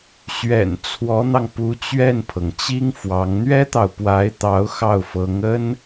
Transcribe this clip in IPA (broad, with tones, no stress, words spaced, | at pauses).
ɕɥɛ̰˨˩n t͡sʰwɔ˧˥n̪ɑ˧ŋpu˧˥ t͡ɕɥɛ˥˩npʰɤ˩ŋt͡ɕi˥ŋfwɑ˧˥ŋ n̪ɥɛ˥t̪ɑ˨ʊ̯pwa˧˥ɪ̯t̪ɑ˧˥ʊ̯ xɑ˥˩ʊ̯fɤ˧˥ŋə˥n